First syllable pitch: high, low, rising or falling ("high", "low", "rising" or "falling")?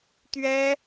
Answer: high